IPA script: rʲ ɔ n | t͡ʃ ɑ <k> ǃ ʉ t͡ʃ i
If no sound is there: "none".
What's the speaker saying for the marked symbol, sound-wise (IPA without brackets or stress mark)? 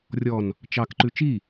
k